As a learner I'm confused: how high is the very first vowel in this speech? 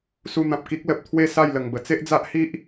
high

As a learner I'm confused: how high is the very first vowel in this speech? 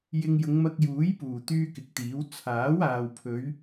high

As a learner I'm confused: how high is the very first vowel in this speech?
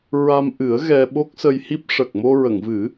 low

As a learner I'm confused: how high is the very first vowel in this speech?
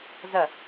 low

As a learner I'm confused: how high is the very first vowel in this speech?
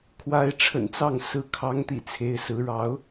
low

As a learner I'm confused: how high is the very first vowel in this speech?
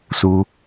high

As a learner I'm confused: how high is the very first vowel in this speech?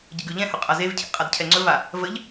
mid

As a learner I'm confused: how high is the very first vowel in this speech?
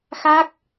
low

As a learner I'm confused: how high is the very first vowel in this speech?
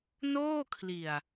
mid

